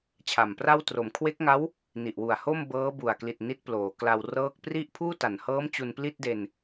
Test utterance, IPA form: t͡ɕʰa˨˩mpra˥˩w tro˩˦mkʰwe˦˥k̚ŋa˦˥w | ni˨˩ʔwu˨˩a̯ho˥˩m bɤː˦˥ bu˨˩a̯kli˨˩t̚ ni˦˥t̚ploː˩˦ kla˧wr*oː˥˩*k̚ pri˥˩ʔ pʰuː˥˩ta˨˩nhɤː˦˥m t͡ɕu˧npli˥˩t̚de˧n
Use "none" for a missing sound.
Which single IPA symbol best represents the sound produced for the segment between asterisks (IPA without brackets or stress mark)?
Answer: ɤː˥˩